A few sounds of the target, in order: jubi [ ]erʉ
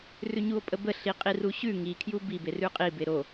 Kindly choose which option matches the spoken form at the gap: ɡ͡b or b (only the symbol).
b